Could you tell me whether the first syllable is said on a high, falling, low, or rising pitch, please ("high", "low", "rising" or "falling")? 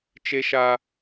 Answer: high